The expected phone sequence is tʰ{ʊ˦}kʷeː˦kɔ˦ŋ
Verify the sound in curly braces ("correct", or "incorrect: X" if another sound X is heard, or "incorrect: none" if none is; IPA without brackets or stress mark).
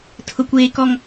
correct